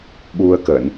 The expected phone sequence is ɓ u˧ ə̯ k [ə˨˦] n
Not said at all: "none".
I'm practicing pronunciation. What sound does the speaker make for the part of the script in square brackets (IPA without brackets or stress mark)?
ə˧˩˨